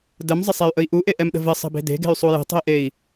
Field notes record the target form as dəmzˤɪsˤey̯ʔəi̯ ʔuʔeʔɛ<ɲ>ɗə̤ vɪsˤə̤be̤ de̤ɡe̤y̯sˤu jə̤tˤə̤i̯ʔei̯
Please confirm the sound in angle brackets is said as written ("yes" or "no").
no